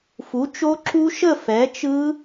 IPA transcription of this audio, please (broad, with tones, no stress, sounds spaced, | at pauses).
f u˨˥ t͡ʃ o˦˥ ǁ u˦˥ ʃ ə˥˧ f ɛ˨˥ t͡ʃ ɯ˦˥